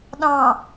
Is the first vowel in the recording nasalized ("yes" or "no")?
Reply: yes